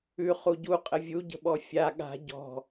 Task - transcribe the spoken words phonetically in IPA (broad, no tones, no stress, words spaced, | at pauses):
ʉ χuɟu qʼəvʲu ɟə̤ɓɔfʲa ɠa̤ ɟɔ̤